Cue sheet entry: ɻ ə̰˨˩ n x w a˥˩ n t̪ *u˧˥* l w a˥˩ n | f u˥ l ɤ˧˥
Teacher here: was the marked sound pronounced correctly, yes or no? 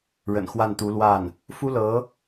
yes